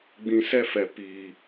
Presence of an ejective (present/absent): absent